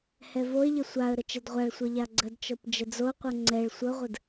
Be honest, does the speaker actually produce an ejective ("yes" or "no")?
no